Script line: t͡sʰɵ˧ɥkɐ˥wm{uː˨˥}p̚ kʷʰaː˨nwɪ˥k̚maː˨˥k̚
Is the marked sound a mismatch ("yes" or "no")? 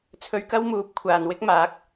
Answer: no